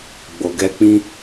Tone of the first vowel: low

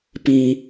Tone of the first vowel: low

